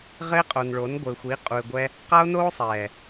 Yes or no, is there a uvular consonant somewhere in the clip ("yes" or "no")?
yes